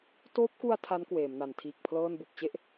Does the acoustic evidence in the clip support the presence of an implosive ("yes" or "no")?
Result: no